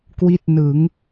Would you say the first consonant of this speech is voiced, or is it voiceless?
voiceless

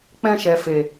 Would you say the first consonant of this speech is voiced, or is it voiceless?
voiceless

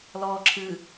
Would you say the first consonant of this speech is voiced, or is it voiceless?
voiced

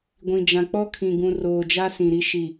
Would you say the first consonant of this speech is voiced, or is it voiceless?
voiced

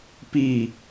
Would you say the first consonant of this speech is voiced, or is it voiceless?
voiceless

